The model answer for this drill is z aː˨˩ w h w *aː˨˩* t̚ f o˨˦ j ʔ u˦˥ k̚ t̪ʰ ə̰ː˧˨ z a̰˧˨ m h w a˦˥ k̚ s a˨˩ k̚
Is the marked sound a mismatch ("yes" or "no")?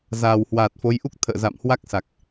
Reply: no